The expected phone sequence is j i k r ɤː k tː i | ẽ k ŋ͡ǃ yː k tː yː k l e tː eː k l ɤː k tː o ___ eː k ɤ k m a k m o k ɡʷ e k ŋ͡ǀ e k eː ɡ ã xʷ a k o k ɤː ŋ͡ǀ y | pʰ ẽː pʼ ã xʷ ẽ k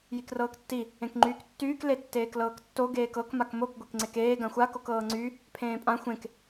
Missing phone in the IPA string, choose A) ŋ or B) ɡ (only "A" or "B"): B